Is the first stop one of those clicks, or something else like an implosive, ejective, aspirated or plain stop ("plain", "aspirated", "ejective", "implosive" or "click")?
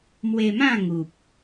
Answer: plain